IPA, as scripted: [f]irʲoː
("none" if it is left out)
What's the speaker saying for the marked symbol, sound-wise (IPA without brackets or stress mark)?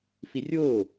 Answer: f